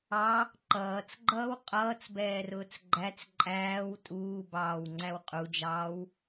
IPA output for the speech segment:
ɑ | ǃ ʌː t͡s ɡ͡ǃ ʌː w qʼ ʌː t͡s b ɛː r ʊː t͡s ɡ͡ǃ æ t͡s ǃʼ æː w tʼ uː b ɑː w ŋ͡ǀ æ w qʼ u d͡ʒ ɑː w

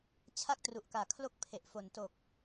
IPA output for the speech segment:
t͡ɕʰ a˥˩ k̚ t r u˨˩ ʔ k aː˨˩ kʰ l o˥˩ k̚ pʰ e˨˩ ʔ f o˨˩ n t o˨˩ k̚

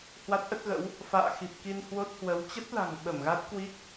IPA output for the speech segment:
h w a˦˥ t̚ ʔ ə˦˥ t̚ ɣ ə̰˧˥ w | f a̰ː˧˨ x i˨˩ p̚ k i˧ n h w o˦˥ t̚ h w ə˨˦ w t͡ɕ ə˦˥ t̚ l a̤˨˩ ŋ ɓ ə˧˩ m ɣ a˦˥ t̚ k w i˦˥ k̚

